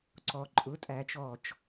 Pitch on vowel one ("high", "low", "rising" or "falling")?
low